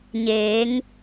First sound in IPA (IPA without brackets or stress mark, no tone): ɲ